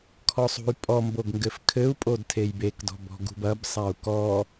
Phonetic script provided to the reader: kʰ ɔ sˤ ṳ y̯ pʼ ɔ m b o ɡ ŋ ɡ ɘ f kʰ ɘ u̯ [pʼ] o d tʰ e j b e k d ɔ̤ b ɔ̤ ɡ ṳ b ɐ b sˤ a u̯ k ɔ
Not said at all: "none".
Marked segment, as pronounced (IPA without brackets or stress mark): pʼ